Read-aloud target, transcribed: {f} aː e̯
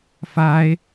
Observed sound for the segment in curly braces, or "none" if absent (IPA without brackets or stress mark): f